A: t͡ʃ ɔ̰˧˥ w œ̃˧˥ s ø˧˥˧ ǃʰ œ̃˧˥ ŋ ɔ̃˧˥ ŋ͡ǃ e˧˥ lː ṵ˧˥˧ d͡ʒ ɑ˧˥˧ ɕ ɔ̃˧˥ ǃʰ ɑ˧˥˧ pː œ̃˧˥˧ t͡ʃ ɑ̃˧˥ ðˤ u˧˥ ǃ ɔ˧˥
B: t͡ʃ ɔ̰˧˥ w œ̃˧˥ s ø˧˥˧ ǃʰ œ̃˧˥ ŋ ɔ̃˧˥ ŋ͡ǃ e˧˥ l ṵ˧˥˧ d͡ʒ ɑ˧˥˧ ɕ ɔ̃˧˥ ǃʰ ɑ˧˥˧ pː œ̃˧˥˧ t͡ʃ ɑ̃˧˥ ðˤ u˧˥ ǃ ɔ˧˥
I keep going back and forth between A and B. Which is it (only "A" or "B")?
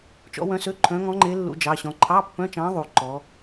A